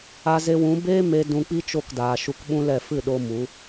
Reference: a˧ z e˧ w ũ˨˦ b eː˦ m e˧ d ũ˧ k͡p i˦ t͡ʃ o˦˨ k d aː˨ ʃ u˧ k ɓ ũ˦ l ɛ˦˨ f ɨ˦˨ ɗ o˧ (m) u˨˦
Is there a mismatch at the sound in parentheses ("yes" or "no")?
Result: no